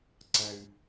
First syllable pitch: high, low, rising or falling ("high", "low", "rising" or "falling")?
low